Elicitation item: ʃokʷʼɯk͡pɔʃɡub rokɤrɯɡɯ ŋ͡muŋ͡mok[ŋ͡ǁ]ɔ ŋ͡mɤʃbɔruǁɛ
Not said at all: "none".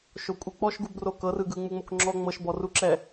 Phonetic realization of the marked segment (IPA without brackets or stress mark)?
ŋ͡ǁ